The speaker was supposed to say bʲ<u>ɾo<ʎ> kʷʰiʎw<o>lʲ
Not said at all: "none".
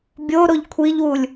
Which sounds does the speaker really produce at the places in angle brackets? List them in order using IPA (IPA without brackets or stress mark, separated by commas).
o, ʎ, u